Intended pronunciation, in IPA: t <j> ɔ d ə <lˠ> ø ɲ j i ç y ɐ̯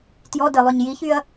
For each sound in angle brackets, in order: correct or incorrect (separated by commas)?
correct, correct